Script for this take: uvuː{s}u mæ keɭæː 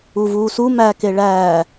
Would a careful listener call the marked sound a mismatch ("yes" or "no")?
no